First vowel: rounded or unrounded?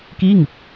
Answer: unrounded